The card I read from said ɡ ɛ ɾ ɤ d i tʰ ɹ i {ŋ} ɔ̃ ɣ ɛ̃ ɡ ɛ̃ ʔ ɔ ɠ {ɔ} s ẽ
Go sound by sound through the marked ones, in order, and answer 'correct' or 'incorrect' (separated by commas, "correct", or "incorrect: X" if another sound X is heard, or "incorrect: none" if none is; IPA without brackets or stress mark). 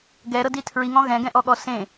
correct, correct